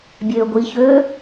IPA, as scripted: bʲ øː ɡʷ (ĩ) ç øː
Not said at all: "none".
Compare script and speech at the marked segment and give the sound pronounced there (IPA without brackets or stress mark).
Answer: i